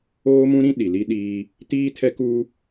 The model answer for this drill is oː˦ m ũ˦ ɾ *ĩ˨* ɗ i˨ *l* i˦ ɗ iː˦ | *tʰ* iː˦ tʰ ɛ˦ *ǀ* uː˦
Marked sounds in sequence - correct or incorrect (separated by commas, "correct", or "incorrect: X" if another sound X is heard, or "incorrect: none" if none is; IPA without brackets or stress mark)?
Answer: incorrect: ĩ˦, correct, incorrect: t, incorrect: k